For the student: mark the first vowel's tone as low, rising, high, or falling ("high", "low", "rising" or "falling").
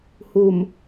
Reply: low